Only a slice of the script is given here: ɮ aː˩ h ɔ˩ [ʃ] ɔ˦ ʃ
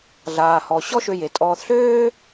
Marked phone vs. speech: incorrect: ɕ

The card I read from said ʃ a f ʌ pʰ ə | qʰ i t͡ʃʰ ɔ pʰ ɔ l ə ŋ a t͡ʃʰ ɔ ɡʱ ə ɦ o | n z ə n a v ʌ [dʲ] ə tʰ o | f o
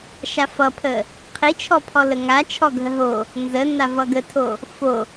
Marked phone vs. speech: incorrect: ɡ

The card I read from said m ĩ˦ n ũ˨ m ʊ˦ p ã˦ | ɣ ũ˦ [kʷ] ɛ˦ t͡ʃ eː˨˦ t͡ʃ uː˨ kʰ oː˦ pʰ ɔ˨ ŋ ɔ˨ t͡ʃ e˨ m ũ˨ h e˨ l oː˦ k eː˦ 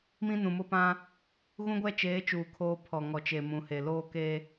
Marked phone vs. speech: incorrect: ɡʷ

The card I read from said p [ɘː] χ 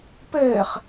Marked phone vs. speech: correct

